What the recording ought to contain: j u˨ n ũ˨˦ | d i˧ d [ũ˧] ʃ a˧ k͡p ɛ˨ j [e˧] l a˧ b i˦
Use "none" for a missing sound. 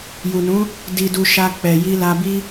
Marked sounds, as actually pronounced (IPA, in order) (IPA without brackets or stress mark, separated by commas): u˧, i˧